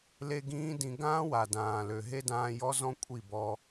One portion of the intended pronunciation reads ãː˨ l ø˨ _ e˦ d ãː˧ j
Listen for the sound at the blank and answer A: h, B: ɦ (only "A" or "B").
B